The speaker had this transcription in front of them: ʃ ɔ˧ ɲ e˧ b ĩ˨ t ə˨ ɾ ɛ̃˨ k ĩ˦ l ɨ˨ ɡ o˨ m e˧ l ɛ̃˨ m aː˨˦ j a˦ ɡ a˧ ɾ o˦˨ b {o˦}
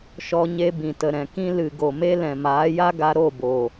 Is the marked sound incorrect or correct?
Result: incorrect: o˨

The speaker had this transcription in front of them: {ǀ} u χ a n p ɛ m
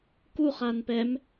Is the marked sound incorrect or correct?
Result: incorrect: k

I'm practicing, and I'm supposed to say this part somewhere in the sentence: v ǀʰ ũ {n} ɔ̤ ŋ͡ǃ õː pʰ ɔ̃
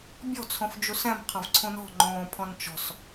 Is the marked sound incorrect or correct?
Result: correct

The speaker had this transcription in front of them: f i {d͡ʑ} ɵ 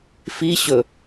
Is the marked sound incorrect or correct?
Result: incorrect: ɕ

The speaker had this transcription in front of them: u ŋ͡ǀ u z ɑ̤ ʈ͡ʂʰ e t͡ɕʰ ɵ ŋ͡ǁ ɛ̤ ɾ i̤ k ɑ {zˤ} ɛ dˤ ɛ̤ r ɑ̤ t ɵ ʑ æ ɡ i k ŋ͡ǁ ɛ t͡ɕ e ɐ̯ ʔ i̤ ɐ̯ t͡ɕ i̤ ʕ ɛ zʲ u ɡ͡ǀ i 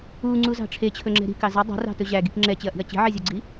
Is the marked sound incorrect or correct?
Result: incorrect: z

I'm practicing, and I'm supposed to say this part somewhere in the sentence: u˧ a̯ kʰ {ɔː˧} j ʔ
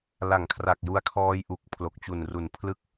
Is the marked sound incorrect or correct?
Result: correct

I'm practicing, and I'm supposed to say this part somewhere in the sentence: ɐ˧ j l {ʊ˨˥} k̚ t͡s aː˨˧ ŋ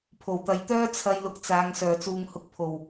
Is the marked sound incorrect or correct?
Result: incorrect: ʊ˧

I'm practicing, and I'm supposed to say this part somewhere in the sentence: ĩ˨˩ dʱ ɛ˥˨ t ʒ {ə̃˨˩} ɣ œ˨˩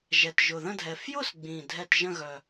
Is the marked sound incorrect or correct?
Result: incorrect: ə̃˥˨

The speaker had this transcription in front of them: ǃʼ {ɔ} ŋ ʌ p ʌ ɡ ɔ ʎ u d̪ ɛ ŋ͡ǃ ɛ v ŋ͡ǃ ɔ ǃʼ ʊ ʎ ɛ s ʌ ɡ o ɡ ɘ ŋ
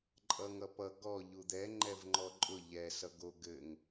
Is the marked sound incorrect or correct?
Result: incorrect: ʌ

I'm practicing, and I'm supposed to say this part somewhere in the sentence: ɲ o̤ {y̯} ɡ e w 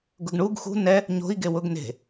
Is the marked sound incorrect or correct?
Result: incorrect: i̯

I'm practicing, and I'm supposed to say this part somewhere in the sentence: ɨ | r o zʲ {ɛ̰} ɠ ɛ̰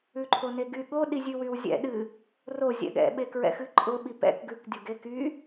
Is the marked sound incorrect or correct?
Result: correct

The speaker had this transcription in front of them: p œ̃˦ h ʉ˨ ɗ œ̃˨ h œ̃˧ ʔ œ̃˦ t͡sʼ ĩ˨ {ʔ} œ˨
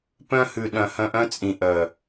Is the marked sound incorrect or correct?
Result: correct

